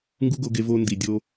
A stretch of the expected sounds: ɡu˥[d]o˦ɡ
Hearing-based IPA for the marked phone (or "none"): ɡ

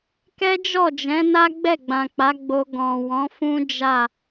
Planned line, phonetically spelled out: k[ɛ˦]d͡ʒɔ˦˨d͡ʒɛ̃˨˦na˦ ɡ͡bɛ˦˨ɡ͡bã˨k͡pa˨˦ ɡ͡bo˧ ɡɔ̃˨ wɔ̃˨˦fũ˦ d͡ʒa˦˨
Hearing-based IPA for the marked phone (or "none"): ɛ˦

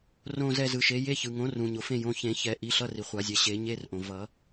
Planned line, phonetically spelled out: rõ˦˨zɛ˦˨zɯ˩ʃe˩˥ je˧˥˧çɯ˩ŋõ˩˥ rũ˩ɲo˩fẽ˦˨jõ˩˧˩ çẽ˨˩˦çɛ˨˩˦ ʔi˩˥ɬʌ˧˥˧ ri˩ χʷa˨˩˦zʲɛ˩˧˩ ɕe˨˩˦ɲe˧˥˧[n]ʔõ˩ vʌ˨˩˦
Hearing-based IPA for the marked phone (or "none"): r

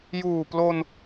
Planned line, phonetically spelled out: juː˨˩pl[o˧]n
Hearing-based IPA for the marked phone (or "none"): o˧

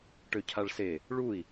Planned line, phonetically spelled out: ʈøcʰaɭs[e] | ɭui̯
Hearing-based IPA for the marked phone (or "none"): e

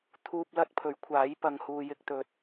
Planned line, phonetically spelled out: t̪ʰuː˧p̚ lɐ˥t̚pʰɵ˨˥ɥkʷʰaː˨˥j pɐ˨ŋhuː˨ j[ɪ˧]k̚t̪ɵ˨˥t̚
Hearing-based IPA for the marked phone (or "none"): ɪ˧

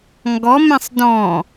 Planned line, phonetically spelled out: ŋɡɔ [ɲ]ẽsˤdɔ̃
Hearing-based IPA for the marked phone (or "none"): m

